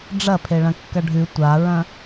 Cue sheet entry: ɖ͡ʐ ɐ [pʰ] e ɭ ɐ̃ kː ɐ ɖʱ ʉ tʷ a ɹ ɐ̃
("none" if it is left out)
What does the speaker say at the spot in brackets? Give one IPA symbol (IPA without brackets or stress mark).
pʰ